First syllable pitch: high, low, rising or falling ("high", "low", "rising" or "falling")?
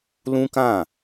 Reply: high